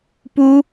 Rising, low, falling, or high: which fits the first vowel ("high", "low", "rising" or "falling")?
high